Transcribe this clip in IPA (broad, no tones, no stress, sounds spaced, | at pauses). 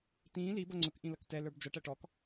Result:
t ĩː l i b ʌ ŋ͡ǀ ʊ k ʔ ĩ l ʌ k t ɛ l ə˞ b d͡ʒ ʌ ʈ æ ʈ ɔ k